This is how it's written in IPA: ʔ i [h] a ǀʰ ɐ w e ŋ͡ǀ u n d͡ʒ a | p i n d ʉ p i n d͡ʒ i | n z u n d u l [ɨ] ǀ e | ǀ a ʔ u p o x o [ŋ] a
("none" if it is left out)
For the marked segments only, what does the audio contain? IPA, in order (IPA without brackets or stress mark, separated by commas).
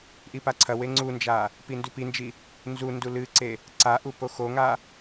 p, ɨ, ŋ